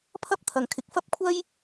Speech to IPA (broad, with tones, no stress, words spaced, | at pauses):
pʰɐ˥p̚t̪ʰɐ˨ŋkʰɪ˨k̚ fɐ˥p̚kʷʰɐ˥j